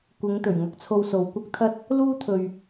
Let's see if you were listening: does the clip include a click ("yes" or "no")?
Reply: no